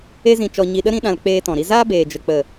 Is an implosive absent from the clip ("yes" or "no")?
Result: no